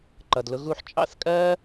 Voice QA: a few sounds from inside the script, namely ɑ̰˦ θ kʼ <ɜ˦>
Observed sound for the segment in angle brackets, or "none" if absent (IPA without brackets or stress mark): ɜ˦